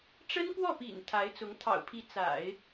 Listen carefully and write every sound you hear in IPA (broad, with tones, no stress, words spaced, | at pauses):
ʈ͡ʂə˥nkwɔ˥˩pḭ˨˩n t̪ʰa˧˥ɪ̯t͡sʊ˧˥ŋ t̪ʰɑ̰˨˩ʊ̯pʰi˧˥ t͡sa̰˨˩˦ɪ̯